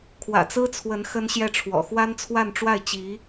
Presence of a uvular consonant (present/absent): absent